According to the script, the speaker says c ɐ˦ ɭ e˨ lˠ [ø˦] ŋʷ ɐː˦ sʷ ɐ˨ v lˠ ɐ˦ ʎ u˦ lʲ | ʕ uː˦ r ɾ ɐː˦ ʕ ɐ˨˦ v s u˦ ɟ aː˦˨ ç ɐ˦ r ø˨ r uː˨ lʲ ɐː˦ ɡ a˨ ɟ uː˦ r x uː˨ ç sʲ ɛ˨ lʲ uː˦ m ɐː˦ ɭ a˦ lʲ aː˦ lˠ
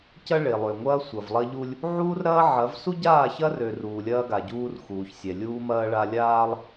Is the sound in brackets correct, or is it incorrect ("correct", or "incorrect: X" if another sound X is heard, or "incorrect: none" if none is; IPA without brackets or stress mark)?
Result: incorrect: ø˨